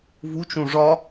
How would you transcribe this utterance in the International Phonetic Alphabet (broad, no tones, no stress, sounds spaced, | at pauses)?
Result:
v u t͡ʃ ũ ʐ ɒ